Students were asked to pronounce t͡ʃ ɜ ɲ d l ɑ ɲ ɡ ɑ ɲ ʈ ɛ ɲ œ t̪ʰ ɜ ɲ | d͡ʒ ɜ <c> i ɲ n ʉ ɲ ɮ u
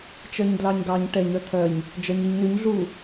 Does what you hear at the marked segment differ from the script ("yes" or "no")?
yes